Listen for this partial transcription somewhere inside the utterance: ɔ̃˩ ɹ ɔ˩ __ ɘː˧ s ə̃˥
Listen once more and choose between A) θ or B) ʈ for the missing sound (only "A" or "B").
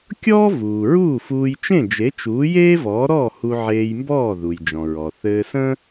A